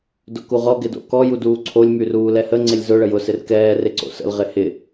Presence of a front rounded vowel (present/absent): present